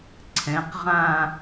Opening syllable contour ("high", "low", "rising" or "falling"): rising